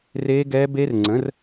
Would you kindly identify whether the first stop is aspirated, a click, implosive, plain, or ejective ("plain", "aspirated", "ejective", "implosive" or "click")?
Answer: plain